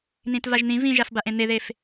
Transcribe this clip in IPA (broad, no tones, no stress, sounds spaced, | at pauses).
n ĩ t v a ʒ n̪ ĩ v ĩ ʒ a f b a ʔ ẽ n̪ e ð e f